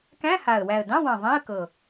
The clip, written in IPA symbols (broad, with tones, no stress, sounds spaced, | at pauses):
k æ̃˧˥˧ h a˨˩ ə̯ w æ˨˩ ə̯ d ɑ̃˧˥˧ w ɑ̃˨˩ ðˤ ẽ˧˥˧ ə̯ k ɤ˨˩